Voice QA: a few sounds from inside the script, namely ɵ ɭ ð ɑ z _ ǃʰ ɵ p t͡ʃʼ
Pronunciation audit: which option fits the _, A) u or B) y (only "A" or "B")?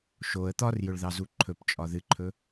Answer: A